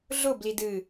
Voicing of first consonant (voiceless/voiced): voiced